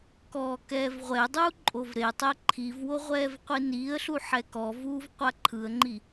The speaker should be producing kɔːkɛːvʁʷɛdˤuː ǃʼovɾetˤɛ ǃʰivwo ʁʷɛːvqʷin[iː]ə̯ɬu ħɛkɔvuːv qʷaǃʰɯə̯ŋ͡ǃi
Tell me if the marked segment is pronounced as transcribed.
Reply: yes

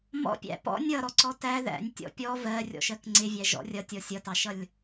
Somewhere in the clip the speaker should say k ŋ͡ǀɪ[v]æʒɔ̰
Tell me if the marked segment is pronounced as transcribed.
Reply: no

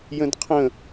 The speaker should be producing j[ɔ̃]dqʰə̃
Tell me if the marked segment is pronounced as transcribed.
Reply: no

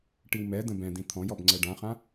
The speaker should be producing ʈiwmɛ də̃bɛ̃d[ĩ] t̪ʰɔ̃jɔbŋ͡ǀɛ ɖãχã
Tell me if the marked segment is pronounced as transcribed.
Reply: yes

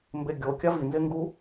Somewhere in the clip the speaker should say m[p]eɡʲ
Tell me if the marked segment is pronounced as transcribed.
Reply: no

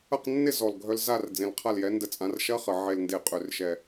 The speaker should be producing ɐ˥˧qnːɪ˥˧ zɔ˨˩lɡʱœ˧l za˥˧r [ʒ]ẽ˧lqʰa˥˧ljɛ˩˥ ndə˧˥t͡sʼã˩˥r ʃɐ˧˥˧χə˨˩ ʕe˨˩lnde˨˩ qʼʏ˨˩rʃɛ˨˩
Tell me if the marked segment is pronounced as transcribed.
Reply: no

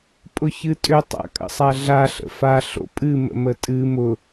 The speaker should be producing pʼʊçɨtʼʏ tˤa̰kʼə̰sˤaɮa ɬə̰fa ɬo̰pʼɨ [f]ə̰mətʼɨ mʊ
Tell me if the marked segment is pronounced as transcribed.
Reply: no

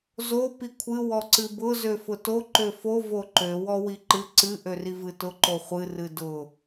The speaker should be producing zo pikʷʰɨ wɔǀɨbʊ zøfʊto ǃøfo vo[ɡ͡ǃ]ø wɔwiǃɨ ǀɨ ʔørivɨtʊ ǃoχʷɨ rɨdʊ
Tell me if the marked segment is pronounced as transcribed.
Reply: no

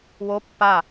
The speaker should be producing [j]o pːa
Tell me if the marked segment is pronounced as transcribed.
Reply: no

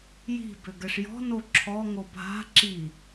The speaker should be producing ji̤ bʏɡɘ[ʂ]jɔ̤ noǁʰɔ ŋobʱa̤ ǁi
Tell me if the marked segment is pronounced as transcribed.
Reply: yes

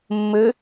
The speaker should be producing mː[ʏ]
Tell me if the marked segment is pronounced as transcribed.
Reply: no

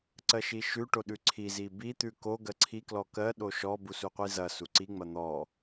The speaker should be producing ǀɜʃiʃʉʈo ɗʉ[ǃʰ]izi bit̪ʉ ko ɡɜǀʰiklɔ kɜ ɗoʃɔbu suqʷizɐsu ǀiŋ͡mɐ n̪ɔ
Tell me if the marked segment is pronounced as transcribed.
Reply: no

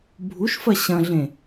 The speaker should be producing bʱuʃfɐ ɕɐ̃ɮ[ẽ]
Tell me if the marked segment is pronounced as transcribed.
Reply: yes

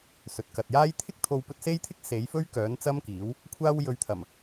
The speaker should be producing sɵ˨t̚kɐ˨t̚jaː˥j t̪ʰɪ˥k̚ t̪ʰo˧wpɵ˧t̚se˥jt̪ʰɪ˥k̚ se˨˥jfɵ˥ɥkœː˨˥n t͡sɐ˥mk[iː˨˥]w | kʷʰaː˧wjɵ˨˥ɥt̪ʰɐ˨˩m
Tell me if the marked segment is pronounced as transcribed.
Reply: yes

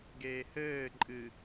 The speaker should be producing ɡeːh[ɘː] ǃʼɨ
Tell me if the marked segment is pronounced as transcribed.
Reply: yes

